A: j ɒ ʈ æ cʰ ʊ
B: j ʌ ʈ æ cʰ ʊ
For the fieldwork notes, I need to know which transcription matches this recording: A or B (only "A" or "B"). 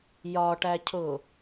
A